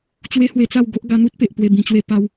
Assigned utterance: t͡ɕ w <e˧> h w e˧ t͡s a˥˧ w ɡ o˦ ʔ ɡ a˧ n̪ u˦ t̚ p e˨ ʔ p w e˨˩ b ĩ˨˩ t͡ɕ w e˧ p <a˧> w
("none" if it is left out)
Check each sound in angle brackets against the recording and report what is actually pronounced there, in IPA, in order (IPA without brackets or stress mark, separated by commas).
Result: e˦, a˧